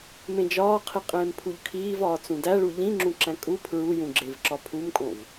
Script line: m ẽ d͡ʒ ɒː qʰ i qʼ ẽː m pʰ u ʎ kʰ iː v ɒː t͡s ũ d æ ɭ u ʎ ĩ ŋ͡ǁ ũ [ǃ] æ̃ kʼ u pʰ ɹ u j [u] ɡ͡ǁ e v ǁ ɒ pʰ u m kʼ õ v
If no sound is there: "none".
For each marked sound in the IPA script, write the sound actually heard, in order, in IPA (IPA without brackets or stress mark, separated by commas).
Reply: ǁ, ũ